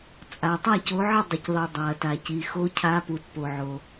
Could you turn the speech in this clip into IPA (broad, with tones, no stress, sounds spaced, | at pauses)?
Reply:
t͡sʼ a˩ tˤ a˥˨ c o˨˦ ʕ ə˥˨ dˤ ə˩ c ðˤ i˩ dˤ a˩ ɐ̯ t a˩ c i˩ x o˨˦ cʰ a˨˦ p u˩ t p o˩ ʕ o˩